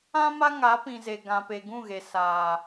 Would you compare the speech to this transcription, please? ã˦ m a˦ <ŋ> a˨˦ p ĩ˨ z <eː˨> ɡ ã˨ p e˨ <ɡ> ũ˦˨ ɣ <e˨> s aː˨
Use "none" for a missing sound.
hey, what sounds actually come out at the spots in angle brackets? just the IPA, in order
ŋ, e˨, ɡ, e˨

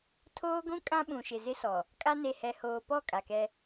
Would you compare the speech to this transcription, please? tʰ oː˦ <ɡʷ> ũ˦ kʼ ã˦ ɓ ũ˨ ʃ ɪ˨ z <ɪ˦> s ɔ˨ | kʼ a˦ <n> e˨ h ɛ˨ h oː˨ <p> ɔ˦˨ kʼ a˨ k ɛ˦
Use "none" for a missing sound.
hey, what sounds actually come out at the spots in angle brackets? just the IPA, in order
ɡʷ, ɪ˦, n, p

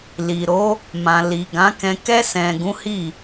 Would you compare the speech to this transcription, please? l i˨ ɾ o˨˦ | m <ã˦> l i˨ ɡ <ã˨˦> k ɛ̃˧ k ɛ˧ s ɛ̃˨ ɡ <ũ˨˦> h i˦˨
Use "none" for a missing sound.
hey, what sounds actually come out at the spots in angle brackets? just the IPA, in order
ã˨, ã˨˦, ũ˨˦

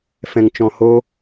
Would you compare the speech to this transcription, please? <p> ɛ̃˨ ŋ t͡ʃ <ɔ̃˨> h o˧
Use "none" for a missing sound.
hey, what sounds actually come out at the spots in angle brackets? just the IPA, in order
f, ɔ̃˨

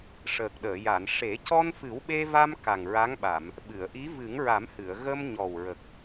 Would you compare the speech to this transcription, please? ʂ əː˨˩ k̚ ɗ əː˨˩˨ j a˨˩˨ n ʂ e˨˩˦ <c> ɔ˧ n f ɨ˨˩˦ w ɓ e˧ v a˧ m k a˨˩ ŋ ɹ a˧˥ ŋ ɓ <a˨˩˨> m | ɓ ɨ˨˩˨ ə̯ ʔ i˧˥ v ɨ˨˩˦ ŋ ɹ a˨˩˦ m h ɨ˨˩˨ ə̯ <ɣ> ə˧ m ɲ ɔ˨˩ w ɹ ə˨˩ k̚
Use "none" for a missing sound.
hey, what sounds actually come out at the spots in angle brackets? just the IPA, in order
c, a˨˩˨, ɣ

